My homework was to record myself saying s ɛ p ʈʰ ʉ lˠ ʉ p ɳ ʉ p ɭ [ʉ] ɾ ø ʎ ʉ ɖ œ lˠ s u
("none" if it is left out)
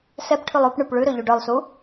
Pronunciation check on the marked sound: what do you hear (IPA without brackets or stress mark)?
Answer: ʉ